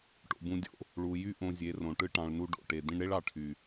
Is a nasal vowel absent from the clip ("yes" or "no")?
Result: no